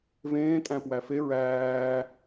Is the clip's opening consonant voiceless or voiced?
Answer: voiced